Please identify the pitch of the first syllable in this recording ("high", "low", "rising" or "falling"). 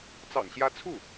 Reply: low